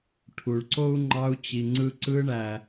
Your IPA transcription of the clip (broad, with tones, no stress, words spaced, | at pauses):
ʈʰu˩ɭǀo˥u̯ŋ͡ǃɑ˧˥u̯t͡ɕi˩ ŋ͡ǀɯ˧ǀɯ˧˥ɳæ˩